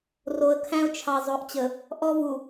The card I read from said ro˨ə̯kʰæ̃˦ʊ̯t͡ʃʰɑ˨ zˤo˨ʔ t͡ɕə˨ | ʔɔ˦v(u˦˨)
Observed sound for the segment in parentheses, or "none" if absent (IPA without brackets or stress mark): u˨